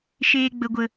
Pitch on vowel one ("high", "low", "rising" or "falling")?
high